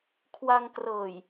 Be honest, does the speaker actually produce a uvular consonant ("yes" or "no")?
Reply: no